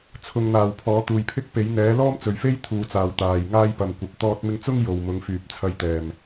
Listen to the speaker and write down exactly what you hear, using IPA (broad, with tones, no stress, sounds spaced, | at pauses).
t͡sʰ ʊ˨ ŋ n̪ aː˨ w pʰ ɔː˨˥ t̪ uː˨ j pʰ ɪ˥ k̚ p e˨˥ j n̪ ɛː˨˥ l ɔː˥ m t͡s ɵ˨ ɥ f e˥ j t̪ʰ uː˨ t͡s aː˨˩ w t̪ aː˨˩ j ŋ aː˥ j p ɐ˨ m kʷ ɐ˨ p̚ t̪ ɔː˧ t̚ m ɪ˧ ŋ t͡s ʊ˥ ŋ j o˨˩ w m ʊ˨˧ ŋ f yː˨ p̚ t͡sʰ ɐ˧ j t̪ ɛː˨˩ m